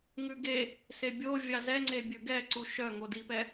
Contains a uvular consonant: no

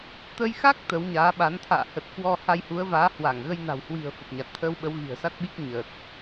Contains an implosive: yes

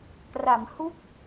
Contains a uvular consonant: no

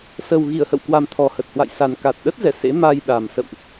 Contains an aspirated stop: yes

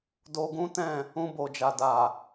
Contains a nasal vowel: yes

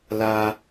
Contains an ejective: no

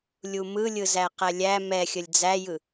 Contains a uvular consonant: yes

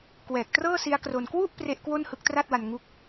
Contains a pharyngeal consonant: no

